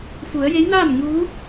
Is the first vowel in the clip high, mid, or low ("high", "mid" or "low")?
high